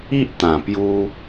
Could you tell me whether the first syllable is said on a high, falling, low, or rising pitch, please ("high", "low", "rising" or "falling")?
high